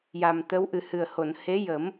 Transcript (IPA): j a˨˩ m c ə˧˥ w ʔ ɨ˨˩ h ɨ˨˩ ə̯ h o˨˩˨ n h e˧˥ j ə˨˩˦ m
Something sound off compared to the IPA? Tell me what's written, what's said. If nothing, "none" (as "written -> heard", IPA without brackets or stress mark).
c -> t̪